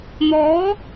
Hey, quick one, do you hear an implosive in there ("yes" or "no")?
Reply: no